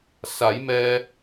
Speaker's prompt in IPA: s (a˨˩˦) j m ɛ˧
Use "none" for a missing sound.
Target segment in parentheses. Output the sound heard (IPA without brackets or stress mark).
a˨˩˦